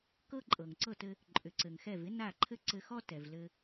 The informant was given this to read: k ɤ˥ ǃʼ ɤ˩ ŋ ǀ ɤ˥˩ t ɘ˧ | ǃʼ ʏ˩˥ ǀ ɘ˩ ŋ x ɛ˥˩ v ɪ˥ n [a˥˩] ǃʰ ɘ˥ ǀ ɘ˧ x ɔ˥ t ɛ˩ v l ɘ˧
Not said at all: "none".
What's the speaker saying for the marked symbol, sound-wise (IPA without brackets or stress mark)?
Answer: a˥˩